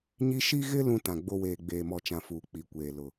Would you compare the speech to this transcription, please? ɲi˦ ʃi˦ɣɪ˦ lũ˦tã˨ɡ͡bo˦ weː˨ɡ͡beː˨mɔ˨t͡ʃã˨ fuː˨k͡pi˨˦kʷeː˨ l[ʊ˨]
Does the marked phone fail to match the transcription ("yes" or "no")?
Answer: no